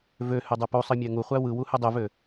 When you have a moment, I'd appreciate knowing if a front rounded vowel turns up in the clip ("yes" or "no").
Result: yes